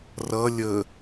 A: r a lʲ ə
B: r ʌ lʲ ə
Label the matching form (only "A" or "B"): B